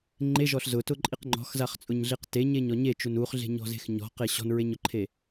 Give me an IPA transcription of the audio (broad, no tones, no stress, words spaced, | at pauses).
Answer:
ŋ͡ǃeʒɔɬ zʊtʊǃʼiq ŋ͡ǃɔ̤xzaχt͡sʼʊɲɮiq teɲeɲɔ ɲet͡ʃun uχɮe̤ɲɔ̤ze̤x ɲɔ̤qe ɕɔ̤nɹeɲʊǃʰe